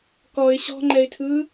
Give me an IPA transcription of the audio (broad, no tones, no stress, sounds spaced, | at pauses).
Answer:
k ɔ ɪ̯ ɕ ɔ̤ ŋ͡ǃ ɛ ɪ̯ tʰ ɯː